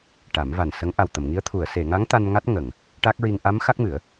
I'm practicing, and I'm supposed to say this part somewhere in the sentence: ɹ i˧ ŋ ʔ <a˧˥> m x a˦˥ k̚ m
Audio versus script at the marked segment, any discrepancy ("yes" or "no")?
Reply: no